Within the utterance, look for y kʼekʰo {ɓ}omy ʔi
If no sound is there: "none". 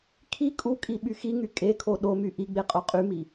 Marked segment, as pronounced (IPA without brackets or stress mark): ɗ